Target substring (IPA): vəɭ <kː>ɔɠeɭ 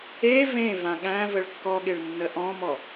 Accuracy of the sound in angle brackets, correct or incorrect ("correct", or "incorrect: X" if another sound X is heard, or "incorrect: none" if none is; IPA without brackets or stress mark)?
correct